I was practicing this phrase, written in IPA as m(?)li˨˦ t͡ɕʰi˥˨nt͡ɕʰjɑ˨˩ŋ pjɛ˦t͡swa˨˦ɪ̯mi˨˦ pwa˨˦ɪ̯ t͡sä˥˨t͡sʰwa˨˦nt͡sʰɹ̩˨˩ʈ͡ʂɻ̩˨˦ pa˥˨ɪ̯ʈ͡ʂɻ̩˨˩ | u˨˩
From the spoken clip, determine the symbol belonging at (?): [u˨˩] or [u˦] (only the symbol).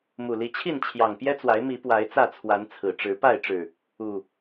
u˨˩